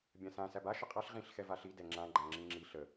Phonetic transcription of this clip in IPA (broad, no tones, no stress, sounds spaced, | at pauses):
bʲ ã s ã s æ b a ʃ ə qʼ a ɬ ʁ ĩ ɬ x ɛ v a ɬ i d ɛ ŋ͡ǁ ã ɡ͡ǃ ã ŋ͡ǁ ĩ ŋ͡ǁ i ɬ ə